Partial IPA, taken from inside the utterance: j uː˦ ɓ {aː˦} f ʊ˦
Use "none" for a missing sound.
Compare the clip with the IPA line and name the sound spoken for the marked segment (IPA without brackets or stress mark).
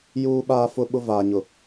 aː˦